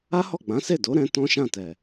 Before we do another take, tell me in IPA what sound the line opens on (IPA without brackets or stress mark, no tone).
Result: a